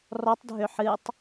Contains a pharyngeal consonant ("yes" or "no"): yes